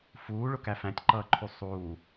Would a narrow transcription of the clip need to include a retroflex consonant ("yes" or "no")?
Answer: yes